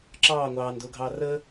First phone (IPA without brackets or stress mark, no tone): ǁ